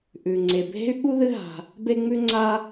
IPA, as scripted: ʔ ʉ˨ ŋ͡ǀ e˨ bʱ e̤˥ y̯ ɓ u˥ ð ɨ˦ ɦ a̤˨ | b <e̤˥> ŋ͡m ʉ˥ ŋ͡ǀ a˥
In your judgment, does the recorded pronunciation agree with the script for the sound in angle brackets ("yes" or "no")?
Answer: no